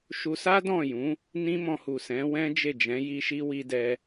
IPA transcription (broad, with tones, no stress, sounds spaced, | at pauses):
ʃ u˧ s a˦ d ɔ̃˦˨ j ũ˨˦ | n ĩ˦ m ɔ̃˧ h u˨ s ɛ̃˨˦ w ɛ̃˦ d͡ʒ e˦˨ d͡ʒ ɛ̃˨˦ j i˦ ʃ i˦ w i˦ d ɛ˦